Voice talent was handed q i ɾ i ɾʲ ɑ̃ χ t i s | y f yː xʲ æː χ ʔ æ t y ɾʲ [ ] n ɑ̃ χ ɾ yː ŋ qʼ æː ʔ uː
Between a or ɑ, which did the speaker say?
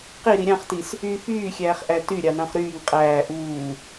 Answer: ɑ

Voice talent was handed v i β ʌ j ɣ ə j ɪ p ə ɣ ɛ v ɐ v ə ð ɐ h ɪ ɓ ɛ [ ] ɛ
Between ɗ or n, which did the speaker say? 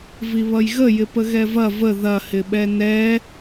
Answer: n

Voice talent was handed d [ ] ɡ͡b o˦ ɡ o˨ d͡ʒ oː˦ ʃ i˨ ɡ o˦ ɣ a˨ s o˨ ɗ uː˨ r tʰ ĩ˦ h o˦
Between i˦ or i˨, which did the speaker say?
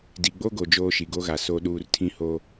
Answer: i˨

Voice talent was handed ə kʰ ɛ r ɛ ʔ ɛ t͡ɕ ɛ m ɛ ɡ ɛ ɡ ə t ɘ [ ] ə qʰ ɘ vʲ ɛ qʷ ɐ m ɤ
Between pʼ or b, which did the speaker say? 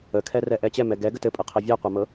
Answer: pʼ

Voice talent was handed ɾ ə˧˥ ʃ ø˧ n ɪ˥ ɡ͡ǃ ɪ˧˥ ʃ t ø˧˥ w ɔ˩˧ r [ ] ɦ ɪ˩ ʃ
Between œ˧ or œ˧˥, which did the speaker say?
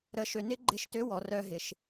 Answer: œ˧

